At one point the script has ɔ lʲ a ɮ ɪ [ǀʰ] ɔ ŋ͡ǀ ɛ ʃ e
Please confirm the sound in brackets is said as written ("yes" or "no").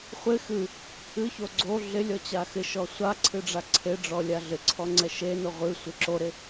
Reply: yes